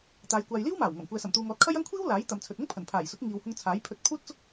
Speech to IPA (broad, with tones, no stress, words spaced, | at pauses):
t̪aː˨˧jkʷaː˨j liː˥wmaː˨˩wŋɐ˨˩m kʷɛː˨sɐ˨˩mt̪uː˨ŋɔː˨˥t̚ kʰɐ˥jɐ˥ŋ kʷʰiː˥wlaː˨˥j t̪ɐ˨˧mt͡sʰɵ˨t̚ ʊ˥ŋpʰɐ˨˩npʰaː˨˩jsʊ˨˥k̚ ŋiː˨whʊ˧ŋ t͡sʰaː˨˥jpʰɵ˧t̚ pʰuː˥t̚t͡sʊ˥k̚